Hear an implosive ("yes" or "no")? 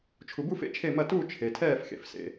no